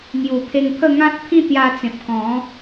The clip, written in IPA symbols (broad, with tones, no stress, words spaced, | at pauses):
ŋju˨˩pʰe˧ŋpʰə˥˧ ŋã˦t̚pʰĩ˥˧t̪ja˧t͡sẽ˨p̚ kɔ̃˨˦